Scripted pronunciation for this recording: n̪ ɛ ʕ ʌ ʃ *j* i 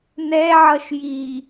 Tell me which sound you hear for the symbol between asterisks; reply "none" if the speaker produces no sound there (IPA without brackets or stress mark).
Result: j